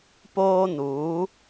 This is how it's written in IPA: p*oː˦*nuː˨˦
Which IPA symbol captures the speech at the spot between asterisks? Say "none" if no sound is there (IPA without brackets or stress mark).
oː˦